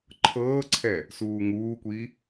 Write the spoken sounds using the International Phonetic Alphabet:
ǃʰ ɤː ǀʰ ɛ | s uː ŋ uː kʷ i

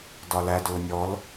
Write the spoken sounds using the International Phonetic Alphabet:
d ɒ l æ d ʊː nʲ ɔ l

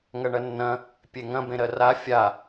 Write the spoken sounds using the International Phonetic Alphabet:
ŋ ɐ ɳ ɐ nː ɐ̃ | pʲ e ŋ ɐ̃ b ẽ ɾ ɜ r a fʲ a

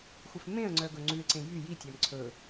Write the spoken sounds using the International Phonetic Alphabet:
xʷ ɛ f m ẽ ə̯ ŋ͡ǀ œ ɡ ɵ ŋ͡ǀ ʉ ɪ̯ ǀ ẽ j y j i tʲ æ m ǀʰ ɵ

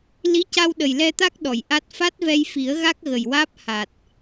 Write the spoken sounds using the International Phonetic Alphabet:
l i˧˥ c a˧ w ɗ ə˨˩ j l ɛ˧ t̪ a˦˥ k̚ ɗ ɔ˨˩˨ j ʔ a˦˥ t̚ f a˦˥ t̚ v ɛ˧ j f i˨˩˦ ə̯ ɣ a˦˥ k̚ ɣ ə˨˩ j w aː˦˥ p̚ h a˨˩ t̚

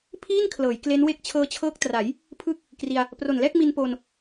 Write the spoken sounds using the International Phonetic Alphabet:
pʰ iː˥˩ n kʰ l ɤː˩˦ j k l e˦˥ n w e˥˩ k̚ t͡ɕʰ ɤː˧ t͡ɕʰ ɤː˦˥ k̚ t r a˩˦ j | pʰ ɯː˥˩ k̚ | k r i˧ a̯ | p r o˨˩ n l ɛː˥˩ k̚ m i˧ n p oː˧ n

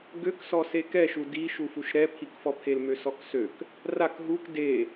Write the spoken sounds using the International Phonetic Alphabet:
ɡ ø k s ɔ s e k ɛ ʃ u d i ʃ u f u ʃ ɾ ɛ pʰ i k f ɔ pʰ e l m ø s ɔ k s ø k | r a k ɦ u k d e

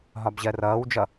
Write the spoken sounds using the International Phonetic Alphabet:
ɦ ɒ b ʑ ɜ r ʌː w d͡ʒ ʌ

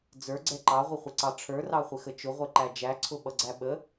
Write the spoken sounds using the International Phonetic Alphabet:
d͡z ə˞ ɡ͡ǀ ɛ ǃ ɑ ʁʷ ə χʷ ɪ ǀ ɑ ʈ͡ʂʰ ə˞ r ɑ χʷ ɪ x ə t͡ʃ ʊ ʁʷ ɛ ǃ æ d͡ʒ æ ǀʰ ʊ ɓ ʌ ɡ͡ǀ æ ɓ ə

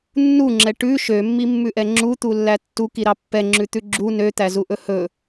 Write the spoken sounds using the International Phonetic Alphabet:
nː u ŋ͡ǁ ɛ ʈ ʉ ʃ ø mː i mː ʉ ʔ ɛ ŋ͡ǁ u t̪ u lː æ tː u k i ɾ ɑ pː ɛ ŋ͡ǁ ʉ t̪ ʉ ɡ͡ǁ u n ø t̪ æ z u ʔ ɵ h ɵ

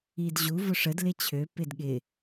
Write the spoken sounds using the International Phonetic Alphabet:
i d ʑ u v ʊ ʂ ə d l ɪ t͡ɕʰ ø p ɪ d ɠ ɪ

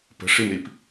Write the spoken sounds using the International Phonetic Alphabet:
p ə̤ ʂ i m ɾ i p

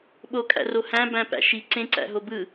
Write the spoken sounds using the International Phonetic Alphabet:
ɓ o kʼ æ̰ r o h æ̃ b æ̃ p æ̰ ʃ i ǀ ẽ ǀ æ̰ ɦ o b ɯ

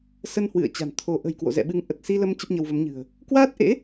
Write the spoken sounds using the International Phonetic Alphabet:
s ə˧ n h w ɨ̰˧˨ ə̯ t͡ɕ a̤˨˩ n t̪ʰ o˨˦ ʔ ə̤˨˩ j k w o̰˧˨ z ɛ̰˧˨ ɓ ɨ˨˦ ŋ ʔ ə˨˩ t̚ s i˧ l ə˧ m t͡ɕ ə˦˥ p̚ ɲ ə˧ w v ə˨˦ m ɲ ɨ̤˨˩ ə̯ | k w aː˦˥ t̚ ʔ ḛ˧˥

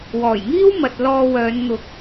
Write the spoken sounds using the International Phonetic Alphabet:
w ɔː˨˩ j ŋ iː˥ w m ɐ˨ t̚ l ɔː˧ w œː˨˧ n n̪ ʊ˨ k̚

